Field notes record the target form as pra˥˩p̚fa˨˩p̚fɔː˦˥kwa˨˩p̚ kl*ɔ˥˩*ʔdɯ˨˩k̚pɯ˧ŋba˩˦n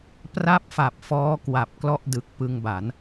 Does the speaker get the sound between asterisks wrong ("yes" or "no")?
no